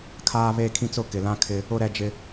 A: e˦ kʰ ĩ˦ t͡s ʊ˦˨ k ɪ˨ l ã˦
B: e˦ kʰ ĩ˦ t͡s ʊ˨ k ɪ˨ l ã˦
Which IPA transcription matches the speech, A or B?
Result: A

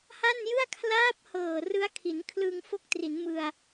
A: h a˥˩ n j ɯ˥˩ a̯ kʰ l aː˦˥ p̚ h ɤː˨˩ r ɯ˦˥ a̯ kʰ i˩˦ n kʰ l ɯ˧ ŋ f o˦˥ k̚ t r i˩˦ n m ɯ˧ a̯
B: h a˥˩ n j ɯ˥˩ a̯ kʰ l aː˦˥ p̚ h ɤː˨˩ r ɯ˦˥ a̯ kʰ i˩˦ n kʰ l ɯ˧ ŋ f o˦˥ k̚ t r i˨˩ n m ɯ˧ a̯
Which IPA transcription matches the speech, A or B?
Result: A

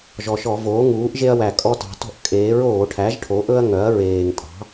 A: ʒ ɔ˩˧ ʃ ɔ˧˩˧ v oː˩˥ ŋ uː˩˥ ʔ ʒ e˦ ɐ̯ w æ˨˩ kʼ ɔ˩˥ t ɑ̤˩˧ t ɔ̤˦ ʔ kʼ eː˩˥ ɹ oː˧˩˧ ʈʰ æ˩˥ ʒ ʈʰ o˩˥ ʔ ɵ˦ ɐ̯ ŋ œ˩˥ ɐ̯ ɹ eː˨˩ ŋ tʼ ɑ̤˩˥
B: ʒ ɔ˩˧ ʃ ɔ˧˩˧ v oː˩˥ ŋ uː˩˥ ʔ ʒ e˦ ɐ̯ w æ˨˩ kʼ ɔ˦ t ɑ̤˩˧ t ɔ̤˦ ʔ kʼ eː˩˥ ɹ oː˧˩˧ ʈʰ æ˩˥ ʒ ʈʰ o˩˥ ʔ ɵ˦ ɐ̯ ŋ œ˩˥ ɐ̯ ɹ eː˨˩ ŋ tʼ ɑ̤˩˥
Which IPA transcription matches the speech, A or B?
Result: B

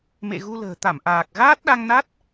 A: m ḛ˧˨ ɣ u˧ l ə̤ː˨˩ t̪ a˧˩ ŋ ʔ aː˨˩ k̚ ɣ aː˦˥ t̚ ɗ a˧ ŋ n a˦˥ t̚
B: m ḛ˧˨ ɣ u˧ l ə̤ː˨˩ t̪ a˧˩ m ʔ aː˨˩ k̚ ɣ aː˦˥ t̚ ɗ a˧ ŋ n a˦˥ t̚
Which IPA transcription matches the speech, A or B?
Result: B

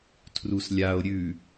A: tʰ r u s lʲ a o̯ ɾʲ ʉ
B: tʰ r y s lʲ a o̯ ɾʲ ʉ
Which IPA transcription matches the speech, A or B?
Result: A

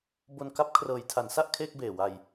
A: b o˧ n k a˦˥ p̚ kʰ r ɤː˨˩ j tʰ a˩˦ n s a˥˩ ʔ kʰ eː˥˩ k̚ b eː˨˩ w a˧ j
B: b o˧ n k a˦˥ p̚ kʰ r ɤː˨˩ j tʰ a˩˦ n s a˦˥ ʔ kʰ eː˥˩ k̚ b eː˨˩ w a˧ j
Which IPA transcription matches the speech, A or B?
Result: A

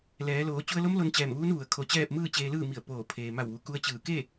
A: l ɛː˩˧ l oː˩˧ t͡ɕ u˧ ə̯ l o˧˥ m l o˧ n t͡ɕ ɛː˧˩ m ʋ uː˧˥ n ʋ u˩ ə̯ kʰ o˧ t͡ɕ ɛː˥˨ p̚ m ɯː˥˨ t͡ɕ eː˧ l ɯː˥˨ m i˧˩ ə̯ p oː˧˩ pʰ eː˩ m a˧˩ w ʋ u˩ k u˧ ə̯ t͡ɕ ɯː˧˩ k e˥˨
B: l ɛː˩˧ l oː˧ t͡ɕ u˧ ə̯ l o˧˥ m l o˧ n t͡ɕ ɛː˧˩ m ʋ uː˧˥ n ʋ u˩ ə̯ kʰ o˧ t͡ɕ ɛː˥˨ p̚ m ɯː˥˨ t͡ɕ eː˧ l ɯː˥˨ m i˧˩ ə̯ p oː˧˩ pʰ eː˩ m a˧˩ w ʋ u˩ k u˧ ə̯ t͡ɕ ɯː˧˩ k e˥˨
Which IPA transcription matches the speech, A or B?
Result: A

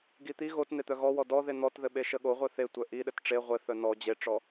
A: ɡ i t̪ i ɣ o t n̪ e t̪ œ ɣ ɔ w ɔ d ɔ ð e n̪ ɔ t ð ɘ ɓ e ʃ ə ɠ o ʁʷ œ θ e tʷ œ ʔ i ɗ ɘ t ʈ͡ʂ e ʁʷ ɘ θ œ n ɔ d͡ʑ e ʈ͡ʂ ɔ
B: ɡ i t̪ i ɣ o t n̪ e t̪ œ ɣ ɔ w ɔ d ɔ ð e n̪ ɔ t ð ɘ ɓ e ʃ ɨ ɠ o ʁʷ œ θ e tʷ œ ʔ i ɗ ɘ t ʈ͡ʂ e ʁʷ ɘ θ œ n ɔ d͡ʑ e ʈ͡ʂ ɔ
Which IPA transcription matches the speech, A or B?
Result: A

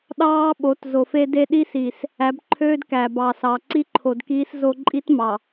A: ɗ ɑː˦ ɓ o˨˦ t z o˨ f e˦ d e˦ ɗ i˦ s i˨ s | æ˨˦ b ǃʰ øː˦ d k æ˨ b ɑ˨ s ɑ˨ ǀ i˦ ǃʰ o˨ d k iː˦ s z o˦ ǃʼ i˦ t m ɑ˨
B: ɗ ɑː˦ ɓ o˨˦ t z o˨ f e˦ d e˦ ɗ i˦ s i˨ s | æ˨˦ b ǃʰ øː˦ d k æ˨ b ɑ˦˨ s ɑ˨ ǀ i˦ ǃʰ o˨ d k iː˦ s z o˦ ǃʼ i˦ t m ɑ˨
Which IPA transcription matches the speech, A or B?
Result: A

